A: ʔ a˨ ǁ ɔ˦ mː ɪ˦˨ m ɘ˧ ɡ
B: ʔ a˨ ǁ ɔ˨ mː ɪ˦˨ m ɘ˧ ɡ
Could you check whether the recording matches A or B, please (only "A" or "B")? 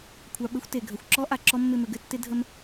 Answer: A